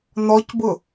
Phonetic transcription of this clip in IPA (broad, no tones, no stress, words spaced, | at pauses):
nɔcbʊ